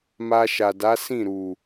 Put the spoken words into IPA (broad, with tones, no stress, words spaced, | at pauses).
ma˧ʃa˨da˨˦ sĩ˦˨ɾu˨